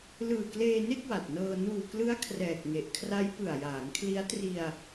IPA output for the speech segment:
l ɯː˨˩ k l eː˧ n e˥˩ k̚ w a˨˩ t̚ n ɤː˧ n uː˨˩ k l ɯ˦˥ a̯ kʰ r ɛː˨˩ k̚ ŋ e˨˩ ʔ kʰ r a˦˥ j p ɯ˨˩ a̯ j aː˩˦ ŋ kʰ l i˦˥ a̯ t r i˧ a̯

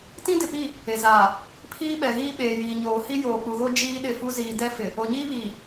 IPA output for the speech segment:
t ĩ˦ d ɪ˨ p i˦˨ | e˨ z aː˨ | pʰ iː˦ ɓ ɛ˨ ɣ iː˦ ɓ eː˨ j iː˨ ɲ oː˨ h i˦ j oː˨ k͡p u˨ ɣ o˦ d͡ʒ iː˦ ɗ ɪ˦˨ f u˦ z iː˨ d ɛ˦ f ɪ˨ | o˨ ɲ iː˦ β iː˨

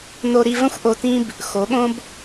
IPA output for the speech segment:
n o˧ ɾ i˧ v ə̃˦ xʷ ʔ o˧ t ĩ˦ b | x o˨˦ ɠ õ˦ b

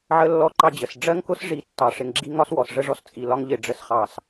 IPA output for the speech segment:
ʕ ə˦ lː ɔ˦ ǃ ɑ˦ d͡ʑ ə˨ s ɖ͡ʐ ɜ˦ ŋ k ʊ˦ s ʐ i˦˨ tː ɑ˨ ʂ ɪ˨ ŋ ɡ͡ǁ i˦ ŋ ɒ˦ s w ɔ˨ s ʐ ə˦ ʐ ɔ˦ s t͡sʼ i˨ l ɒ˦ ŋ ʎ ɪ˨ ɖ͡ʐ ə˨ s χ ɑ˨ s

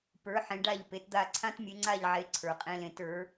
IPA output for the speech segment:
p ə˞˩˥ ħ ẽ˩˥ ɖ a˥˩ ʎ p e˩˥ t d̪ a˥˩ ǀʰ ã˥ t mʲ e˩˥ ŋ͡ǀ a˥˩ ʎ ʕ e˩˥ ǀʰ ə˞˩ qʼ ẽ˧ l ẽ˩˥ t ə˞˩˥

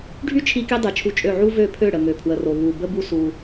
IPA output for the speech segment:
ɖʱ y˦ t͡ʃʰ i˧ k i˧ dˤ i˨ t͡ʃʰ u˧ t͡ʃʼ ø˦˨ ʕ u˦ v ø˦˨ pʰ ø˦˨ ɽ ə˨ ŋ ø˨ pʰ w ə˨ r o˨ β u˨ b ə˦ b u˦ s u˧

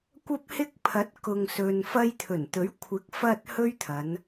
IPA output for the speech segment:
kʷ ɐ˥ p̚ h ɪ˥ k̚ pʰ ɐ˨˥ t̚ k ʊ˨ ŋ s ɵ˨ n f ɐ˧ j t̪ʰ ɵ˨˩ n t̪ ɵ˨˥ ɥ kʷʰ ɪ˨˥ k̚ f ɐ˧ t̚ h ɵ˥ ɥ t̪ʰ ɐ˨˧ n

